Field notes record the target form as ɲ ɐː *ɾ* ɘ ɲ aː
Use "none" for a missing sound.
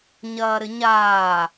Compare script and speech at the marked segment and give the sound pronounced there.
ɾ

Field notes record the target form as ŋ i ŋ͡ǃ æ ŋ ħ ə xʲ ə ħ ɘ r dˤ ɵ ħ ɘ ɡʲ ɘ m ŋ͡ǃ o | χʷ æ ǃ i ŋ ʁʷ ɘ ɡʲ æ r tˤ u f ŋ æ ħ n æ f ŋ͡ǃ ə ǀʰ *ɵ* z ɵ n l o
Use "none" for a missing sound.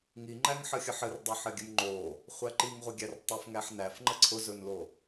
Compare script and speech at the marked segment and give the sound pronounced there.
ʊ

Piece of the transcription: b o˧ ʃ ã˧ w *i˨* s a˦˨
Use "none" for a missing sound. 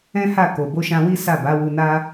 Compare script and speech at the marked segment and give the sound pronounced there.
i˦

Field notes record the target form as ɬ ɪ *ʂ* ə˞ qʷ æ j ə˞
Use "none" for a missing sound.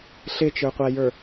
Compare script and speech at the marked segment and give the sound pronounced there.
t͡ʃ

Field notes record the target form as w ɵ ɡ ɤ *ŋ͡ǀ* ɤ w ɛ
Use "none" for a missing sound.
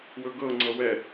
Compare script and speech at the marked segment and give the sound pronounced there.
ŋ͡ǀ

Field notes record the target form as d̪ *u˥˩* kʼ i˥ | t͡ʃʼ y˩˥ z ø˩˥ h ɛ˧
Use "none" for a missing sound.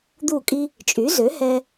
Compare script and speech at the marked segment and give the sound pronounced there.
u˥˩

